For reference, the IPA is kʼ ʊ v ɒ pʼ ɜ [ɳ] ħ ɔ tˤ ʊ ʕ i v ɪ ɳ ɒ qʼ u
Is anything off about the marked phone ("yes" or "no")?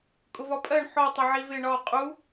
no